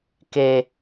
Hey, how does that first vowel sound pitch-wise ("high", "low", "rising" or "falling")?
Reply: high